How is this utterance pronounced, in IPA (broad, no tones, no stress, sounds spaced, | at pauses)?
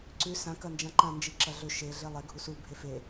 ǀ ʉ s ã k ɐ n d͡ʒ ã ǃ ã n d͡ʒ i ǁ ɐ ɮ ɵ ʃ e ɮ e lˠ e ɡʱ u s u bʱ e f e